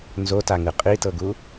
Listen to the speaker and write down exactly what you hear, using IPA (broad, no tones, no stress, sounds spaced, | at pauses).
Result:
n z o t a ŋ ɯ qʼ i t ɤ ɡ u